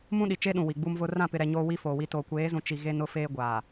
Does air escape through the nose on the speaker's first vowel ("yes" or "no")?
yes